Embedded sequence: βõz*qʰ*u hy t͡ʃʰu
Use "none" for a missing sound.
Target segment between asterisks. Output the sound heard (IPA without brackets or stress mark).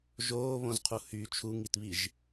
qʰ